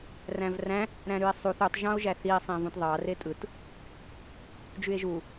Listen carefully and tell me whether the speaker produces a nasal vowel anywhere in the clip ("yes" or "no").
yes